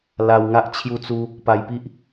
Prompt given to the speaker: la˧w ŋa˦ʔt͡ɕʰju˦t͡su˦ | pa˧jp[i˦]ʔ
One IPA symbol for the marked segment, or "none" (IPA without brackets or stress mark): i˦